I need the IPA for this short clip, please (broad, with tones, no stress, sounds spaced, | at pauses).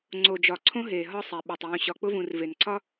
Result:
ŋ͡ǀ o˨ d͡ʒ ɒ˨ ǀʰ õ˦ ɦ eː˨ ɦ ɒ˦ sˤ ɛ˨ ɓ ɒ˨ tˤ w ũ˨ ɕ ɒ˨ k͡p ʊ˦ v ũ˨ r v e˨ n ǀʰ ɒ˦